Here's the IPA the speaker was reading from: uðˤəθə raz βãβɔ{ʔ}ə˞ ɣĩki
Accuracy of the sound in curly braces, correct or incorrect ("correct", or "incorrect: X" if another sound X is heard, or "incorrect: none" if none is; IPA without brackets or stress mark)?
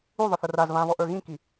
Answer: correct